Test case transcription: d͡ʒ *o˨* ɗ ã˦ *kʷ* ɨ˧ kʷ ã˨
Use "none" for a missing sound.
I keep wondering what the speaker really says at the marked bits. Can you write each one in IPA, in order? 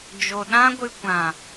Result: o˨, ɡʷ

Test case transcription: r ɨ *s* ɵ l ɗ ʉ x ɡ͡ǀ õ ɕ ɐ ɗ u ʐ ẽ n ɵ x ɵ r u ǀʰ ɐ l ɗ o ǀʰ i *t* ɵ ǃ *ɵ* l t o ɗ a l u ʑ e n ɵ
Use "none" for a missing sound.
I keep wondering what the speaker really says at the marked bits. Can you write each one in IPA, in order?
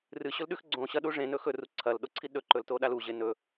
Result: ɕ, ɗ, ɵ

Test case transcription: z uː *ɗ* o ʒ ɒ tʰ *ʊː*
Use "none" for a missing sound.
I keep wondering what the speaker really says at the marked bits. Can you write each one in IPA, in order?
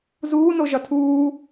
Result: n, uː

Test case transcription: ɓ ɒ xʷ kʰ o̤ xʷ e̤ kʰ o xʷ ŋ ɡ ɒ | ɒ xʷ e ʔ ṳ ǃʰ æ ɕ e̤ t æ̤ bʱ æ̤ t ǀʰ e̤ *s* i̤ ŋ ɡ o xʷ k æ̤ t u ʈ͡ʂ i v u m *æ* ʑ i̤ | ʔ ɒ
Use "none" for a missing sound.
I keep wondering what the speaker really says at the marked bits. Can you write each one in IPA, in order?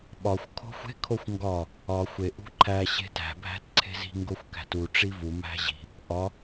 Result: z, æ̤

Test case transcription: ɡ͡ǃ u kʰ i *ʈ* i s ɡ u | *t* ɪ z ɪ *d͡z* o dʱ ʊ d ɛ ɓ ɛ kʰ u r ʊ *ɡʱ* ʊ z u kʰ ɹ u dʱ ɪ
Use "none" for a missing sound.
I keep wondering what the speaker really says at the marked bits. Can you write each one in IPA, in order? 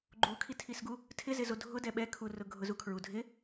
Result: tʰ, tʰ, z, ɡʱ

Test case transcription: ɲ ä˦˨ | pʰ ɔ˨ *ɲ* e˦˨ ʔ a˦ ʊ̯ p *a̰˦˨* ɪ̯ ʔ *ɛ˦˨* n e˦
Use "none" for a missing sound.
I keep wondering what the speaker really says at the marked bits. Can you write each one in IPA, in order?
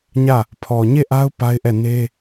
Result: ɲ, a˦, ɛ˦˨

